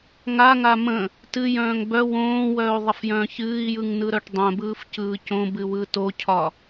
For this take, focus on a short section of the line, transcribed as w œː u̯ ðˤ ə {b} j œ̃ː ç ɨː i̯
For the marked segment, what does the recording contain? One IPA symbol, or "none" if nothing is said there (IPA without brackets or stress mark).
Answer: f